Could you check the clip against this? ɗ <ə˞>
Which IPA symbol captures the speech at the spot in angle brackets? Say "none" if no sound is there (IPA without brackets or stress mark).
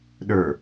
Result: ə˞